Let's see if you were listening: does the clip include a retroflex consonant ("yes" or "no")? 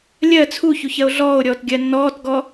no